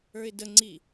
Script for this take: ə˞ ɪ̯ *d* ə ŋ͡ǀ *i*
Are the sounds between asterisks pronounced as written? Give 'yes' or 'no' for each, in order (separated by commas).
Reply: yes, yes